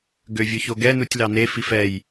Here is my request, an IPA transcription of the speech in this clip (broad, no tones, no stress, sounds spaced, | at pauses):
ɡ ø vʲ ɵ ç o ɡ ɛ n u tʲ l ɑ n e f i f ɛ j